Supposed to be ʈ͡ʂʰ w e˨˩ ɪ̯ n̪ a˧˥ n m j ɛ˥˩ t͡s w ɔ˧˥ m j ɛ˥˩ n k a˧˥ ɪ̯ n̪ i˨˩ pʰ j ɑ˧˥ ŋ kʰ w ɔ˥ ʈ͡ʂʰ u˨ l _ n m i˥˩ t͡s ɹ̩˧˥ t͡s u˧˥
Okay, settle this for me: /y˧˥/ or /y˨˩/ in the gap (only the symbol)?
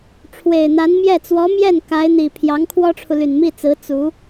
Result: y˨˩